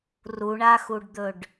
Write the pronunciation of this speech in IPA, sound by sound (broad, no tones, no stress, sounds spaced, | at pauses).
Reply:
r u ɳ a x u ɖ d̪ ɵ ɖ